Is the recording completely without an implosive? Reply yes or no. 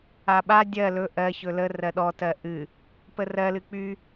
no